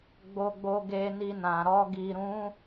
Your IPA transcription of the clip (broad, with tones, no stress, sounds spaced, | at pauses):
ɡ͡b o˧ ɡ͡b o˧ ɡ e˧ n i˧ n ã˨ ɾ ɔ˧ ɡ i˨ ɾ ũ˨˦